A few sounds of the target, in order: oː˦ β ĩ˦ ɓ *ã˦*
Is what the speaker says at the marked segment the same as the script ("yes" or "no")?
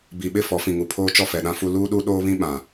no